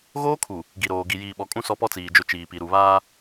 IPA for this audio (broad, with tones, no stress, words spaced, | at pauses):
ɣoː˦kʰu˨ | ɡi˨ɾoː˨ ɡi˨jiː˨ɓɔ˨kʼũ˦ sɔ˦pɔ˦t͡siː˨d͡ʒʊ˦˨ t͡ʃiː˨pi˨ ɾu˨βaː˦